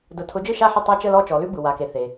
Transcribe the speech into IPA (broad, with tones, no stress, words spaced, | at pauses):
dʊ˨ tʰʊ˨˦d͡ʒɯ˥˩ʃa˥˩ħə˥˩ tˤa˥˧t͡ʃə˥˧lɔ˥˧ t͡ʃɔ˨˦lʉ˥bɯ˨ wa˨ke˨θe˨